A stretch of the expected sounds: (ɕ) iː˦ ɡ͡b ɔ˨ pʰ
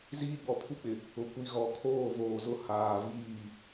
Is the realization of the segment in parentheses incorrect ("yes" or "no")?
yes